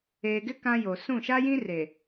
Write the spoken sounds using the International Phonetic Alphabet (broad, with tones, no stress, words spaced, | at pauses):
eː˨ɡɪ˦ kã˦jo˨ sũ˦˨ ʃa˦jĩ˦re˨